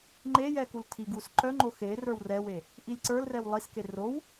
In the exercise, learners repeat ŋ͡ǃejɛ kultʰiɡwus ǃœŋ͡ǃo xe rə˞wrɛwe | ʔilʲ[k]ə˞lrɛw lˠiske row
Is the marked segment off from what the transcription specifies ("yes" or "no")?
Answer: yes